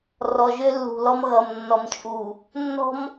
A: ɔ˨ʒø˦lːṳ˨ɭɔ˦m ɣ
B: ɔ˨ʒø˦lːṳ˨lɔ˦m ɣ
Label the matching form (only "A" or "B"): B